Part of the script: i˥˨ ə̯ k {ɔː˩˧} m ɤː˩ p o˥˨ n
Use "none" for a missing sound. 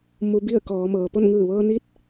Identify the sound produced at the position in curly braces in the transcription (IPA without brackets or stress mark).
ɔː˩˧